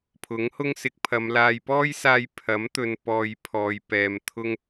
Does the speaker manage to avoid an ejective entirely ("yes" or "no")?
yes